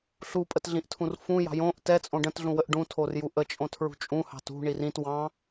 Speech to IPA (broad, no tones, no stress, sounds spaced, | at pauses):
ɬ u pʼ ə t ɮ ĩ ʔ tʰ ũ r f ũ j ɑ̤ j õ ʔ t ɛ t͡sʼ õ ɖ ə̃ t ɮ ũ w ə ʔ ɖ ũ tʰ o r j u ʔ ə t͡ʃʼ õ tʰ ɹ ṳ t͡ʃʼ ũ h ɑ̤ t ṳ ɳ i r ĩ t w ɑ̃